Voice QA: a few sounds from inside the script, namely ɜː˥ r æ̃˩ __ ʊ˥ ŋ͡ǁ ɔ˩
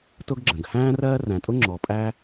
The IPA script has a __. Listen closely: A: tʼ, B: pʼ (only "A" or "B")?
A